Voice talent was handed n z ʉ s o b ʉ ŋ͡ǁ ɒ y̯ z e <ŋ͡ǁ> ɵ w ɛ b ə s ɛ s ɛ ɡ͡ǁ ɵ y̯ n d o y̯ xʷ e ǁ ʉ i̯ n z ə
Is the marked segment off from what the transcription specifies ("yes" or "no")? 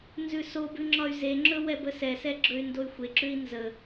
no